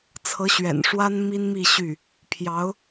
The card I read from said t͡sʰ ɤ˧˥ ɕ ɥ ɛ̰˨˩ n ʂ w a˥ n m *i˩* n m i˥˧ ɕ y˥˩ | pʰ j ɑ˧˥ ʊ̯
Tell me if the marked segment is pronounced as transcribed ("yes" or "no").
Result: no